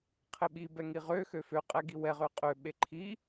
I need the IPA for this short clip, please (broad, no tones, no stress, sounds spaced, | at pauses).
qʰ e ɓ i b ɛ ŋ i ʁ ø x ø f ø qʼ ɛ ɡ i w ɛ ʁ ø qʼ ø ɓ e ǃʰ i